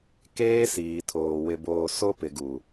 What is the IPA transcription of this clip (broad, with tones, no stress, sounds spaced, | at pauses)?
k eː˦ s iː˨ tʰ oː˨ w ɪ˨ b oː˨ s o˦ p ɪ˨ ɡ u˨